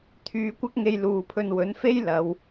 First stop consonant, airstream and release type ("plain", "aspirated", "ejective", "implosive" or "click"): aspirated